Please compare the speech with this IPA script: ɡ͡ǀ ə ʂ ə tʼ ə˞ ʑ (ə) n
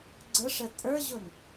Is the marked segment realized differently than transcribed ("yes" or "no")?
yes